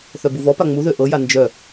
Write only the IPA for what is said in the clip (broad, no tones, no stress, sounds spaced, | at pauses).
θ œ b u v ɔ p a ŋ͡m u ð ø ʔ ɤ j a n d͡ʒ œ